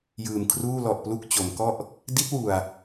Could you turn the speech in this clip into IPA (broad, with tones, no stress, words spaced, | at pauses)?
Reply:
jɯː˨˩mkʰruː˥˩lɔ˨˩ʔplu˥˩k̚ t͡ɕo˩˦mkɔ˥˩ʔ | di˦˥t̚wu˨˩a̯